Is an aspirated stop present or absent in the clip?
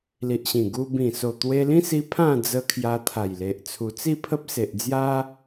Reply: present